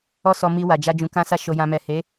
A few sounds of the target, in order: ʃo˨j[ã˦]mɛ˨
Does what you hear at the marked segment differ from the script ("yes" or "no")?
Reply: yes